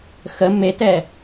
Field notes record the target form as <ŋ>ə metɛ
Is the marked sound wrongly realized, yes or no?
yes